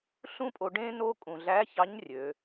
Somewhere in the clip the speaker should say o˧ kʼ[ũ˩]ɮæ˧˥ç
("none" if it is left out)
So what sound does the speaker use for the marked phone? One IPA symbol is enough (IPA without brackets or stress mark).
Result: ũ˩